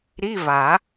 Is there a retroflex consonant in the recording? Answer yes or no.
no